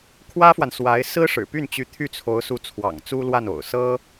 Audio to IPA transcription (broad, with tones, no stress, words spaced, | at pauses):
kʰwä˥fwa˨n swa˧˥ɪ̯ sɹ̩˥ʂɻ̩˨˩py˥˩nt͡ɕy˧˥ t̪ʰy˥˩t͡sʰo˧˥ʊ̯ su˧˥t͡sʰwɑ̰˨˩ŋ t͡su˥lwa˥˩no̰˨˩ʊ̯ sɤ˥